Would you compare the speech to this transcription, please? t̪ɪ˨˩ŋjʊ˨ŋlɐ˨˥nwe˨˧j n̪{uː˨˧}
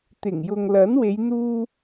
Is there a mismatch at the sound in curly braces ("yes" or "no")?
yes